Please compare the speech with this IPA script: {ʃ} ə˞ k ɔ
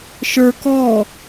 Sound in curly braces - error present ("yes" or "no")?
no